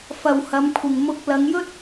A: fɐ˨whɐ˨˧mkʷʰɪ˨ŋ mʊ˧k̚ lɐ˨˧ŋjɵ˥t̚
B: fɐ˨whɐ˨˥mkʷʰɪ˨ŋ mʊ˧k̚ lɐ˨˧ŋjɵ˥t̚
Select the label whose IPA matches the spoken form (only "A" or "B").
A